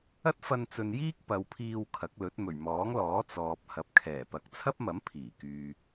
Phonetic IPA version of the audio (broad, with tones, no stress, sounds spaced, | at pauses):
ɐ˥ t̚ f ɐ˧ n t͡s ɵ˨ n j iː˥ k̚ p ɐ˨˧ w pʰ iː˧ w kʰ ɐ˨˥ k̚ l ɵ˨˥ t̚ m ɵ˨˩ ɥ m ɔː˨˥ ŋ l ɔː˨˥ t͡s ɔː˨ p̚ h ɐ˨˥ p̚ kʰ ɛː˨˩ p ɐ˨ k̚ t͡sʰ ɐ˥ p̚ m ɐ˨˥ m pʰ iː˨˩ k yː˨